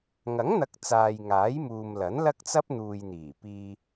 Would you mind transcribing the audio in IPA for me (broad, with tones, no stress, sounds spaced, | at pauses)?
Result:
ŋ ɐ˨˥ ŋ n̪ ɐ˨˥ k̚ t͡s aː˨ j ŋ aː˨˥ j m uː˨ m l ɐ˨˥ n l ɐ˥ k̚ t͡s ɐ˥ p̚ n̪ uː˨ j n̪ iː˨˩ p iː˧